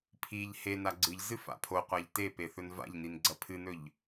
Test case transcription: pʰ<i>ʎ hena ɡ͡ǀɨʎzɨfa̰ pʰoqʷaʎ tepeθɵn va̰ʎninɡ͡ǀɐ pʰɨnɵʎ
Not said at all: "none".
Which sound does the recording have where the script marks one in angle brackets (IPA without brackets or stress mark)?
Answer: i